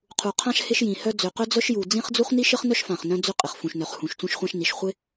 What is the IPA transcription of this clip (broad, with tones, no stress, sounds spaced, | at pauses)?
qʰ u˩ qʰ ã˥ ʃ h ɪ˥ ʃ j ĩ˩ h œ˥ d͡z ø˩ q œ˥ d͡z œ˥ ʃ j u˩ d͡z ĩ˥ χ d͡z u˥ χ n i˥ ʃ ɪ˥ χ n œ˥ ʃ f ã˩ χ n œ̃˥ d͡z ʏ˥ qʼ ɪ˩ χ f ũ˩ ʃ n œ˩ χ h ũ˩ ʃ t͡s ũ˥ ʃ χʷ ã˥ ʃ n i˩ ʃ χʷ ɪ˥